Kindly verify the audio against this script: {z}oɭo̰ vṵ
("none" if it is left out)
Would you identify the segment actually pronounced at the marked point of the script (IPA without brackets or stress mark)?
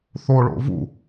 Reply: θ